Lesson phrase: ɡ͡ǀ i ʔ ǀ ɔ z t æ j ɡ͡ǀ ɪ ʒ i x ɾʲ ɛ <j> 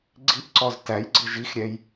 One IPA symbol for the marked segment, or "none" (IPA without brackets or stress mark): j